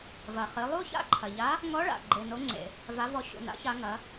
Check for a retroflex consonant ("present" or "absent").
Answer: present